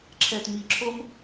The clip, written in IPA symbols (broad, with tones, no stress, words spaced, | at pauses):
ǁʰɛ˨tmi˨ǁʰo˦m